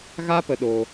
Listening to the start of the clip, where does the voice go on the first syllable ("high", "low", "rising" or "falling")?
high